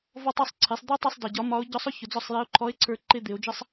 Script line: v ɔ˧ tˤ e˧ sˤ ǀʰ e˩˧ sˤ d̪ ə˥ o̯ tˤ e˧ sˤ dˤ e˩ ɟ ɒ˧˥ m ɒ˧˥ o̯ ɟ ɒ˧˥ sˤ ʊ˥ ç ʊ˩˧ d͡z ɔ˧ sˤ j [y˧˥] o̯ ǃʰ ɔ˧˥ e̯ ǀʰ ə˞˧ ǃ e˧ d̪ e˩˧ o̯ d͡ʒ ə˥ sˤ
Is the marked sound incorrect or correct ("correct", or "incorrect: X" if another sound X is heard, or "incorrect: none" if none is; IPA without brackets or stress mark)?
incorrect: e˧˥